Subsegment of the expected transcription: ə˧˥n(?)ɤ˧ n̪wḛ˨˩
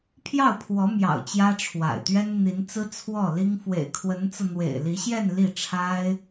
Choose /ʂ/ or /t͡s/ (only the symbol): t͡s